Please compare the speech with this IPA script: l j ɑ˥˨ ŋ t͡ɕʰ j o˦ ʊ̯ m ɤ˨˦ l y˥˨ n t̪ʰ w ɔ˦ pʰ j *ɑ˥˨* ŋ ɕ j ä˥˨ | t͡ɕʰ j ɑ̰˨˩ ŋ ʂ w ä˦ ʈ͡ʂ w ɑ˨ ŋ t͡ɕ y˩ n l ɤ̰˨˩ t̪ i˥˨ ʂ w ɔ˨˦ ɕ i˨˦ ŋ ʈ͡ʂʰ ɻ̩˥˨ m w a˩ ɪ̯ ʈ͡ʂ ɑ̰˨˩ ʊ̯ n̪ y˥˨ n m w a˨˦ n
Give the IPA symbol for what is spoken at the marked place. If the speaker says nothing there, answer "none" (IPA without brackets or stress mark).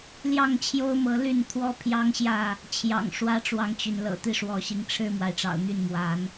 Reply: ɑ˦